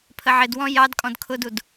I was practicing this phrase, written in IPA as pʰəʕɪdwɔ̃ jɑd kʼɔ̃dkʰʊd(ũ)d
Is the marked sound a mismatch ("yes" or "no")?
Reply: yes